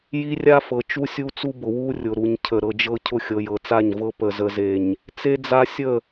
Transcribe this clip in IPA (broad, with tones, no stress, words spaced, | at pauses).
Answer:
ji˦rʲa˦fɤ˨ t͡ʃu˦sʲu˦t͡su˦bʊ˨ wu˦ rʲʊ˨ɾu˨ɲcʰə˨ ɾɤ˨d͡ʒɤ˦cʰʊ˦ xʲɤ˨jɤ˨t͡sa˦˨ɲvɤ˦ pə˨zə˨ze˨ɲ | t͡se˦d͡za˦sʲə˦˨